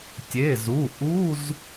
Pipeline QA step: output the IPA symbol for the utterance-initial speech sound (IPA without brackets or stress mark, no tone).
tʲ